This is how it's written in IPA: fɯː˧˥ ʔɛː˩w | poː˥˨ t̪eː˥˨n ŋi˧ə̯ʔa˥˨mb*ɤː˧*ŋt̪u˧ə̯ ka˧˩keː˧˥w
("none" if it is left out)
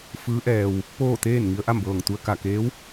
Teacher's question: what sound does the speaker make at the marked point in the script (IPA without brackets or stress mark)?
ɤː˧˩